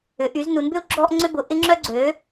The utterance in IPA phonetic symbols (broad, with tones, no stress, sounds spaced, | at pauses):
ʏ˨˥ ʔ y˨˥ z n u˨˥ n b ʏ˥ u̯ ɡ͡ǁ ɔ˥ ʔ ŋ͡ǀ ʏ˥ b ʊ˨˥ ʔ ɪ˥ ŋ͡ǁ œ˥ ɡ͡ǀ ø˨˥